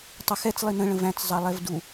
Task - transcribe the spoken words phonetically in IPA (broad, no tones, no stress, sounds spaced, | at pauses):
tˤ ɪ x ɛ t͡s lˠ i n̪ ə̃ ɭ ə̃ v æ̃ t͡s zˤ ɑ lˠ ɛ v d u